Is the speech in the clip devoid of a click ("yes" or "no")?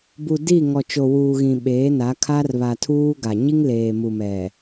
yes